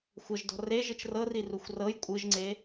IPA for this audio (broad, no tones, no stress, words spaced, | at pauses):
xʷɤʒdɔ̤ reʒɯt͡ʃ rɤriruxʷ rɤj kʷʼɯʒŋ͡ǀe